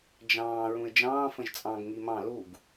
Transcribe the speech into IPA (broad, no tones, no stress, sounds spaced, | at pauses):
d͡ʒ ɑ̃ː ɹ ũ ɪ̯ d͡ʒ ɑ̃ː f ə̃ ʒ t͡sʼ ɑ̃ ɡ ŋ i m ɑ̃ l u ɡ